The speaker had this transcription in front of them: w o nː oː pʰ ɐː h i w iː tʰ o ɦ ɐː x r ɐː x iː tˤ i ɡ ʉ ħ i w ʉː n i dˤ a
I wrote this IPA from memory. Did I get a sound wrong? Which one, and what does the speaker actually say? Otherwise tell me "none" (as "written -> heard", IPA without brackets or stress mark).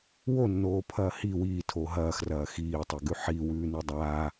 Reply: none